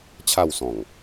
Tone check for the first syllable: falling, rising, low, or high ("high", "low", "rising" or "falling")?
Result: falling